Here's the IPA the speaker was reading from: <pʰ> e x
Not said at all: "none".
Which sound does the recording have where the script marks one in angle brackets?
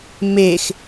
m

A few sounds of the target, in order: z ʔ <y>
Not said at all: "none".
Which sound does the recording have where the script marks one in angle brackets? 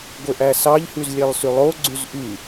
y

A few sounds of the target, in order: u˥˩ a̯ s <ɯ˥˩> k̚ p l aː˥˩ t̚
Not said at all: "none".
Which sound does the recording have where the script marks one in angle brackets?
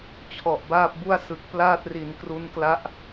ɯ˨˩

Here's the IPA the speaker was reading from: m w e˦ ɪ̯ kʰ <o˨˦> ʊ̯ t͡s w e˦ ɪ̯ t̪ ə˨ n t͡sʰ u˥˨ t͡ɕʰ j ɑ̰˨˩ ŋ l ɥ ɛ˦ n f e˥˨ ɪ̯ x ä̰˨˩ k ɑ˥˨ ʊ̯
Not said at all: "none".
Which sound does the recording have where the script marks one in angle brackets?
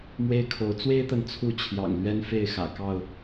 o˨˦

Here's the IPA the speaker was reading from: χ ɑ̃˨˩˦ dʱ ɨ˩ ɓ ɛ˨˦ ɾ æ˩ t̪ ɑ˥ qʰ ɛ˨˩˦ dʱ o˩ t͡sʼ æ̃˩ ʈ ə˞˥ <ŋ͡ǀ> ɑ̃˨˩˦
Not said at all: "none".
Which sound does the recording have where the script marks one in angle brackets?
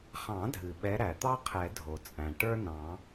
n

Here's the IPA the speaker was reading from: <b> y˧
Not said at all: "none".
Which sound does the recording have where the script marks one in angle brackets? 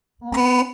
b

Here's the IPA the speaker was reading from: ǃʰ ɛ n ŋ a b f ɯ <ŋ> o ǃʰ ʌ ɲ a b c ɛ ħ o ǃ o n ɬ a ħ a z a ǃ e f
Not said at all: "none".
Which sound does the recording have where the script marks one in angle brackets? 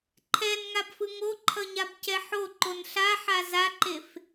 ŋ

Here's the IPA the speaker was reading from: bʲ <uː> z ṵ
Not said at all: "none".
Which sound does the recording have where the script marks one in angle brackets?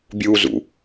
uː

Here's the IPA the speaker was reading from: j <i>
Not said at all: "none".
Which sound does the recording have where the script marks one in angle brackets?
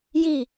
i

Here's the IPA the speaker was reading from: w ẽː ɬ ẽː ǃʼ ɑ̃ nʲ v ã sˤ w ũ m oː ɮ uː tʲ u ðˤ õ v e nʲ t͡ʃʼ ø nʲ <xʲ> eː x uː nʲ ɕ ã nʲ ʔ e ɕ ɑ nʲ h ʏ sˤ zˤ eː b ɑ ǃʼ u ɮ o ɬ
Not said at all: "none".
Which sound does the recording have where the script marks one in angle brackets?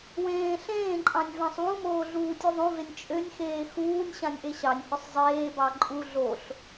x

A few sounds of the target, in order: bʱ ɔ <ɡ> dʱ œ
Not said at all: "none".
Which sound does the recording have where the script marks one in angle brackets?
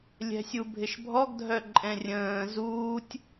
ɡ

